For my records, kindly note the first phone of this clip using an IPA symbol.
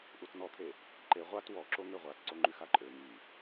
ʔ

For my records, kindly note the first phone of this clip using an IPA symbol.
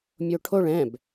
mʲ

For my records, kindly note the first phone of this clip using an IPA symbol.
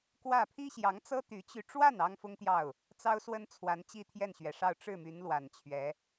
k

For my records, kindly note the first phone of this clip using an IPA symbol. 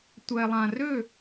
tʷ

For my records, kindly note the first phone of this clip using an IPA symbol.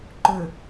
ǃ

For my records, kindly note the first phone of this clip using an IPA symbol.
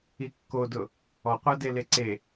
i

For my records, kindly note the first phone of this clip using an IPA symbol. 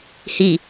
h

